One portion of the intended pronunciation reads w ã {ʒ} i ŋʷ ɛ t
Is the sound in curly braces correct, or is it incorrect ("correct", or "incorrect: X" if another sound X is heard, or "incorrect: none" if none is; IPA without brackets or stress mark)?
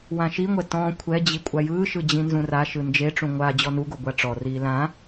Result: incorrect: ʃ